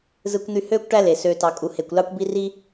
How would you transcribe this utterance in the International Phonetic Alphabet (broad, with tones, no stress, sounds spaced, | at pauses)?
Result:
z ɯ˧ kʷ n̪ y˧ h øː˦ kʷ ʈ æ˦ l e˨ s øː˧ t ɑ˧ kʼ u˧ h e˧ kʷ l ɑ˦ kʷ b i˦ r i˦